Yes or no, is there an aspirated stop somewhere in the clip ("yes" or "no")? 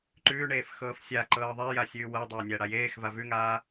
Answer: no